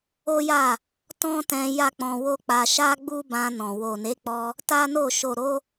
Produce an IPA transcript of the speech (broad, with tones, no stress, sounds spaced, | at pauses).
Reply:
o˦ j a˦˨ | t ɔ̃˦ t ɛ̃˧ j a˦ k͡p ɔ̃˧ w o˦ k͡p a˧ ʃ a˦ ɡ͡b u˦ b ã˧ n ɔ̃˨ w o˨ n e˨˦ k͡p ɔ˧ | t a˦ n o˦˨ ʃ o˨ ɾ o˧